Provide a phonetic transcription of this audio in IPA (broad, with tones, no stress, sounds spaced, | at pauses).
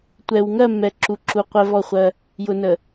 tʷ ɛ˨ w ŋ ɜ˦˨ mː ɛ˨ ǁ u˨ ǁ u˨ qʷ ɛ˦ v ɔ˦˨ χʷ ɜ˦ | j ʊ˨ n ə˨